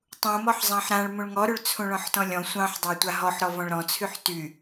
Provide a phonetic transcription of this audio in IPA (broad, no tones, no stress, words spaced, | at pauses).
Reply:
tˤũmɔħzˤɑ̃ħ ɾãɭ mũɭŋɔɾyɭ t͡sʰũɭɔ̃ħtɔ̃lʲɔ̃ sʷɑ̃ħdˤa tʷaɦɔħ ɾɔvɔ̃ɭɾɔ̃ t͡sʰyħty